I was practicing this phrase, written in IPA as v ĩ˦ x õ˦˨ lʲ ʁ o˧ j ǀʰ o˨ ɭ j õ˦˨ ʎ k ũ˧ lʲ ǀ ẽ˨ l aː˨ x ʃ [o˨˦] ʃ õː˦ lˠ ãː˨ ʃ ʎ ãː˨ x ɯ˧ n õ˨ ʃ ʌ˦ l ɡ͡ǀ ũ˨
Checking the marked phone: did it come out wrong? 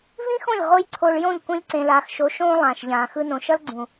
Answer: no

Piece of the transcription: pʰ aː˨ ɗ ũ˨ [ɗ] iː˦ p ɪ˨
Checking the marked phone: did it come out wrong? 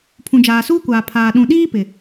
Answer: no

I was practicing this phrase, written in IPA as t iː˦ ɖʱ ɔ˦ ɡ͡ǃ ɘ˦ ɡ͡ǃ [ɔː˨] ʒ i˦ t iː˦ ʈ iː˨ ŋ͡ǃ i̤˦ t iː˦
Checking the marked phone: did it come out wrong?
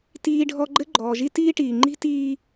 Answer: no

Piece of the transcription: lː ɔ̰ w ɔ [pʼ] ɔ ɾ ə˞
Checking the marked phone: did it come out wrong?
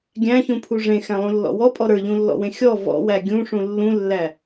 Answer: no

